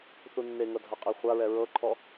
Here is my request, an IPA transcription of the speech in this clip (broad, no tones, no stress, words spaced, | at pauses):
θunːeŋɤ dʱaqʼiχʷaɹɛ ɹɤǃʰɔ